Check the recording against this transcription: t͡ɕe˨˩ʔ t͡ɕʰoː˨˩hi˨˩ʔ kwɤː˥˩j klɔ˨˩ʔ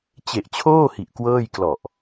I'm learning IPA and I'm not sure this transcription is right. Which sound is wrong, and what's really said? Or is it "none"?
oː˨˩ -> oː˥˩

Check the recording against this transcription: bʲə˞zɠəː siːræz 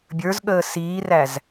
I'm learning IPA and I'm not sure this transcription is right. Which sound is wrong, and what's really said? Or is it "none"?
none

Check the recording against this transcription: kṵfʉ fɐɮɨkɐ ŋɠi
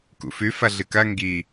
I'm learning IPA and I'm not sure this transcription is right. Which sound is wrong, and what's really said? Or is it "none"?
ɠ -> ɡ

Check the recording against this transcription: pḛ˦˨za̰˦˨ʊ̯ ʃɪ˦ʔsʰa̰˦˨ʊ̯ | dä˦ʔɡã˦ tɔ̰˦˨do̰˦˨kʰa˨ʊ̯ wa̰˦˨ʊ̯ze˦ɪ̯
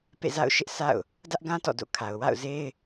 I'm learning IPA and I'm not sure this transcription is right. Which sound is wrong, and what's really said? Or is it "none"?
none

